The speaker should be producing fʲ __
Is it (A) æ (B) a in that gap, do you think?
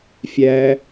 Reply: A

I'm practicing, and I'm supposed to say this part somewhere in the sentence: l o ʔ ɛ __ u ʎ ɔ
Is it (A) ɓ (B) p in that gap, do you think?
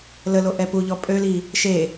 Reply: B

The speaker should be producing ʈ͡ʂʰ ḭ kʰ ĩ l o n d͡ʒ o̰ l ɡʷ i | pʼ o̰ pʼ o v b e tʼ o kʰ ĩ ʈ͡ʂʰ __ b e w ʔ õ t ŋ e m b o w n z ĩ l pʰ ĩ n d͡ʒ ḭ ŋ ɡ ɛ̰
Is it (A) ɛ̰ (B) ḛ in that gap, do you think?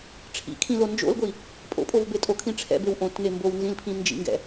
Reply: A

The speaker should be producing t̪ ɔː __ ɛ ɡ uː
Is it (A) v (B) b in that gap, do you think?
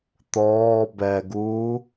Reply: B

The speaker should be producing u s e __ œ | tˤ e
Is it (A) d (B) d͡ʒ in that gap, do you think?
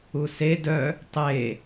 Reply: A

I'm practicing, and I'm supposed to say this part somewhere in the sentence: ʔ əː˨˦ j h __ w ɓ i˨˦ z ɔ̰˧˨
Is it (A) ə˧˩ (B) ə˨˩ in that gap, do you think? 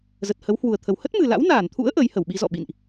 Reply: A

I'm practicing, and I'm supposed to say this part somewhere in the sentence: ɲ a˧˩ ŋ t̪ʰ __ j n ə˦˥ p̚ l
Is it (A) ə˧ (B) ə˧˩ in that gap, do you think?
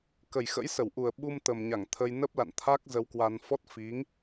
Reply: A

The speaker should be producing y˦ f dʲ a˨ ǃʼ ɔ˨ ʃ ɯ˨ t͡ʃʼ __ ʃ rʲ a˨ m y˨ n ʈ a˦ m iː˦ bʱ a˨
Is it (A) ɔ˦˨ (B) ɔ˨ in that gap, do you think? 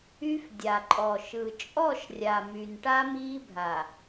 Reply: A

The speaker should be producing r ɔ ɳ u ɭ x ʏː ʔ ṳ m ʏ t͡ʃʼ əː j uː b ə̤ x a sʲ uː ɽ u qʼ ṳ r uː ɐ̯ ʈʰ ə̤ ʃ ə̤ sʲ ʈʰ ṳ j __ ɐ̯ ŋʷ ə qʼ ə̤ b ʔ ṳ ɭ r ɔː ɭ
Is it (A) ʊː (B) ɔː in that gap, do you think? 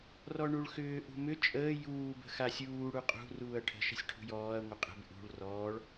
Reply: B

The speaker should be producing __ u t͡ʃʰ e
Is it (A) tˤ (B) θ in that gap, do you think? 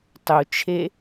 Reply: A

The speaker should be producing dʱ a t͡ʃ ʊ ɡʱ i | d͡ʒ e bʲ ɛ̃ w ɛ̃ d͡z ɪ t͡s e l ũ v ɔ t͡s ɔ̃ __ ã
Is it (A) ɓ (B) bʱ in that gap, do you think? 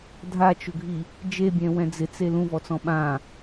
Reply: A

